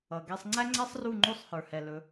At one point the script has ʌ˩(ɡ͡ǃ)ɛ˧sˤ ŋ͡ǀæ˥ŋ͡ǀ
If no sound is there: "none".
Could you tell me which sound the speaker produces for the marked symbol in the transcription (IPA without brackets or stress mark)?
ɡ